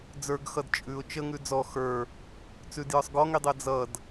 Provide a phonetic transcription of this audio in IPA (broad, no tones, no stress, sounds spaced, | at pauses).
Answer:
d͡z ə˞ ɡ x ʌ d t͡ʃʼ ʉ ʊ̯ t͡ʃ ə ŋ ʉ d͡z ɔ x ə˞ | t͡s ʉ d j ə˞ sˤ ɡ ɔ ŋ i dˤ ɜ d͡z ʌ d